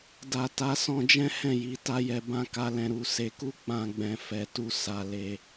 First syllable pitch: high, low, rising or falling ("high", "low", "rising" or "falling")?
low